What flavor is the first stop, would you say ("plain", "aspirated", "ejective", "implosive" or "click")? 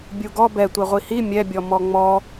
plain